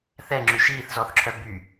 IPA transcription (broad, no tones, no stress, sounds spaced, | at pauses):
θ ɛ ŋ͡ǁ ʉ ʃ iː θ z ɔ θ ǁʰ œ b y